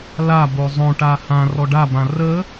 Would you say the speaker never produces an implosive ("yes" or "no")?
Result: yes